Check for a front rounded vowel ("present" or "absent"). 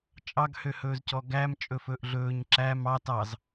present